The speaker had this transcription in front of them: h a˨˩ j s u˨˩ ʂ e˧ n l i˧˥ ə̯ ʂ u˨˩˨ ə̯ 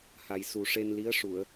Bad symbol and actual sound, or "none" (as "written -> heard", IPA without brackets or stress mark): none